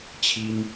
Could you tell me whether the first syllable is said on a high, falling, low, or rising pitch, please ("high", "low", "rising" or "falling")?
high